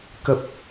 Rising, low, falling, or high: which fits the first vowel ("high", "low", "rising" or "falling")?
low